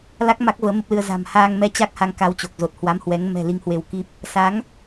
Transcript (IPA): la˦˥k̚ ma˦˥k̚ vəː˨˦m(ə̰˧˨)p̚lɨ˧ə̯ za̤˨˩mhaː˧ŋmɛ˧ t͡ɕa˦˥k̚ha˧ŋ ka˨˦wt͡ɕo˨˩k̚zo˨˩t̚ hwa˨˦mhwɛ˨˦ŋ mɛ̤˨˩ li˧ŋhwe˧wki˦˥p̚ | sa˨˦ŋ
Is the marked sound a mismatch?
yes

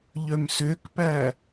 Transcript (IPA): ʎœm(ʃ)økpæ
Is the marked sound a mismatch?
yes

